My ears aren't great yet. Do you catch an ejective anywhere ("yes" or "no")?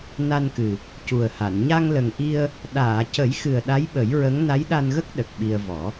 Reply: no